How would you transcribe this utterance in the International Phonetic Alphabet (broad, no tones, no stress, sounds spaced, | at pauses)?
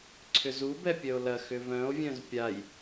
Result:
ǀʰ ʏ z u b ɛ pʲ œ o̯ l ɐ x ʏ v œ̃ o̯ vʲ œ̃ z pʲ a j